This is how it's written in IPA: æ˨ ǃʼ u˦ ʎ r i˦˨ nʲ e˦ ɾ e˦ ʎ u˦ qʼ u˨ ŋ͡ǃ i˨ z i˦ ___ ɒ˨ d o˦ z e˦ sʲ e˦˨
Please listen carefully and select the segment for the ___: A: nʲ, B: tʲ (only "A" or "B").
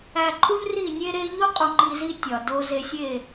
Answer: B